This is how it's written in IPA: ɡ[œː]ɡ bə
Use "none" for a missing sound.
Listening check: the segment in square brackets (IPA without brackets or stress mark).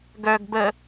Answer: œ